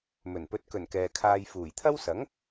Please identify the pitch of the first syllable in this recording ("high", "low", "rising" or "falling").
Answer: low